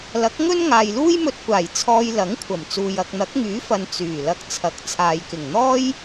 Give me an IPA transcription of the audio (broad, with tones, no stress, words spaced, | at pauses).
lɐ˨˥k̚ŋɵ˥n ŋaː˨jluː˥jmɵ˧t̚kʷaː˨˩j t͡sʰɔː˧jlɐ˨˥ŋkʷʰɐ˨˩mt͡suː˨j ɐ˨k̚n̪ɐ˨˥k̚ŋyː˨˥fɐ˨n t͡syː˨˩ lɐ˧k̚t͡sʰɐ˨˥k̚t͡sʰaː˨jkɪ˨˩ŋ n̪ɔː˥j